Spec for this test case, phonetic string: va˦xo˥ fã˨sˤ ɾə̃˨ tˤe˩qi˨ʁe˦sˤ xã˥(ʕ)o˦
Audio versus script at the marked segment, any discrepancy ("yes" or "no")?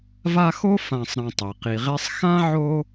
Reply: no